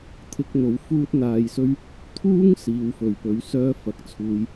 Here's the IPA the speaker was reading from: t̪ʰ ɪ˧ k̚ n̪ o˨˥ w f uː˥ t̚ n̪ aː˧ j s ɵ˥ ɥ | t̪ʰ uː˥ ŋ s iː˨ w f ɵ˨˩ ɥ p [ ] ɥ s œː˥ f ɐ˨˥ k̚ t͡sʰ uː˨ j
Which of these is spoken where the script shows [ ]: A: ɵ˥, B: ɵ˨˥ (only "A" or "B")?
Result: B